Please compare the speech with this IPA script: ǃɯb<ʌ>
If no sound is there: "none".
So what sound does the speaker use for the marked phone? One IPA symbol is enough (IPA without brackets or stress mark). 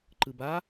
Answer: a